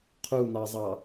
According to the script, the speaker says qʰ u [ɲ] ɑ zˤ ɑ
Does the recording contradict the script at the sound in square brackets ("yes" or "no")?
yes